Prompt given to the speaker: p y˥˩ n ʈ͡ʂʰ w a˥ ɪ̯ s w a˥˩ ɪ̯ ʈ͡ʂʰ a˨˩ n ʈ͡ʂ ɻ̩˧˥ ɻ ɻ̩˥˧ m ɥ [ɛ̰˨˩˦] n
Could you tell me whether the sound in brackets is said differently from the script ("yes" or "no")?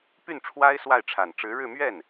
yes